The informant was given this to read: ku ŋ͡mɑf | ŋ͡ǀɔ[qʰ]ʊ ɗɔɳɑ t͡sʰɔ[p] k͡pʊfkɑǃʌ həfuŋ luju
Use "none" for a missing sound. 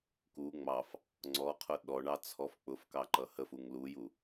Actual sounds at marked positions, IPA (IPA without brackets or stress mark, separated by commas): qʰ, f